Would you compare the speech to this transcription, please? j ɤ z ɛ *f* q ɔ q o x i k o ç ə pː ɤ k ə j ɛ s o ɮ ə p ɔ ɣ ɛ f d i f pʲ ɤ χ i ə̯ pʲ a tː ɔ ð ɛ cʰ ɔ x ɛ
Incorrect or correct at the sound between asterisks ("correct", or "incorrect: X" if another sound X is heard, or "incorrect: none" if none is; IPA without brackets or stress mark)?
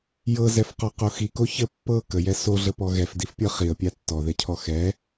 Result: correct